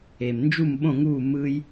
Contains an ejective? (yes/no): no